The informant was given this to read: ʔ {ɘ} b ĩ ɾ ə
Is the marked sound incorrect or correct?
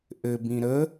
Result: correct